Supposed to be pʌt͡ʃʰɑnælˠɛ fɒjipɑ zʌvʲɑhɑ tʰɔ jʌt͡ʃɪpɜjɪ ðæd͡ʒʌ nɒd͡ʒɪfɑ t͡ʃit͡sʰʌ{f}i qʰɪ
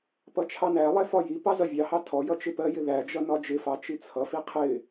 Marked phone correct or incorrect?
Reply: correct